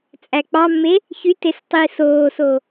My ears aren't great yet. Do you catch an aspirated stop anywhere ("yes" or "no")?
no